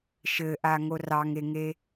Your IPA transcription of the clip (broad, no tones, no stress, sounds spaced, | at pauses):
ʃ ɘ ʔ a ŋ o r ɑ ŋ e ŋ e